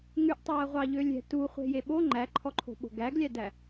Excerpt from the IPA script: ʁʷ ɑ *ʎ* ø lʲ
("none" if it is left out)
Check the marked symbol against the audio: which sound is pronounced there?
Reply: ʎ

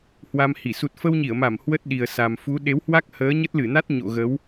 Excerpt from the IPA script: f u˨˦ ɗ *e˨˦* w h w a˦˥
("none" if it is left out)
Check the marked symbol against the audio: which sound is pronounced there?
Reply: e˨˦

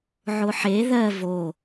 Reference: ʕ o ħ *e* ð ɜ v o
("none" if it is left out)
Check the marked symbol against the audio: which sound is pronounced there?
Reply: e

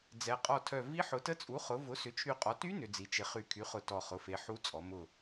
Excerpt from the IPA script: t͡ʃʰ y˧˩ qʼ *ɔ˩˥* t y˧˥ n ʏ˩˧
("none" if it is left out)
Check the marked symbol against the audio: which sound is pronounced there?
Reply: ɔ˩˥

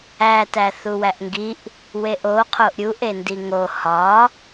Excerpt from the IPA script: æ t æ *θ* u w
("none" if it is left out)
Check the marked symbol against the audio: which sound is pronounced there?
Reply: θ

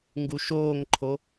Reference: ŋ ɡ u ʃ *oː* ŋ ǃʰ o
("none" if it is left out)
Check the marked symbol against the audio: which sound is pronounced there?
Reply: oː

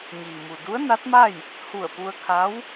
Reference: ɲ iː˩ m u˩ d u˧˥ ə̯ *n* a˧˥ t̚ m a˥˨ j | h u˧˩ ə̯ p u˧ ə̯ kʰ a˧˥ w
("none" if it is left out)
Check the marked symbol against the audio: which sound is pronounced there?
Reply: n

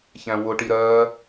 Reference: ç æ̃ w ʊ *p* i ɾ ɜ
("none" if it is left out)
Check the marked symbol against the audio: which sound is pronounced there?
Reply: ʈ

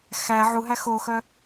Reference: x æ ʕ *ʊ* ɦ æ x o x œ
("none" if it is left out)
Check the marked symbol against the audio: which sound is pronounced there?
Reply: u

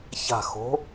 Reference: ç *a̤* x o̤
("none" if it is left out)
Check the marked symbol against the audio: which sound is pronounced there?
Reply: a̤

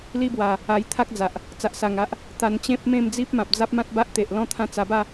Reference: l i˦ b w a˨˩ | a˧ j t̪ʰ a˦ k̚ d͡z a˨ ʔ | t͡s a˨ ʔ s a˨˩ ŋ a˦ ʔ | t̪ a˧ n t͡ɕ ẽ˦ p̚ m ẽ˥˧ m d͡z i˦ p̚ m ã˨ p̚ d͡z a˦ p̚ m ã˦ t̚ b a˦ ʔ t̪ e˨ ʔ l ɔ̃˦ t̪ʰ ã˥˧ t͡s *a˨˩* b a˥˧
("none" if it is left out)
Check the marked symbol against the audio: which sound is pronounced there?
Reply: a˧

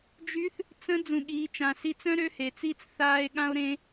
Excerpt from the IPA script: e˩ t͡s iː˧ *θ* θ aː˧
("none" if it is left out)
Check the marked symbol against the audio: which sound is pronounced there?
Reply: t͡s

